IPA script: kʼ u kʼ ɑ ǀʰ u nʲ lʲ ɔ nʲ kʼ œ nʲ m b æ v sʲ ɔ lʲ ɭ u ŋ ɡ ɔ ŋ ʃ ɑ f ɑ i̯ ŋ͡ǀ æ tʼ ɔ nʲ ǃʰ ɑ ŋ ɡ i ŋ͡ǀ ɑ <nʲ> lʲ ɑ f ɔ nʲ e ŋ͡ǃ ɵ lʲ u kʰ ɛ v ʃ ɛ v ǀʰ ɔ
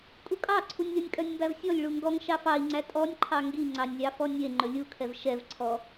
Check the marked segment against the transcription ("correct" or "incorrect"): correct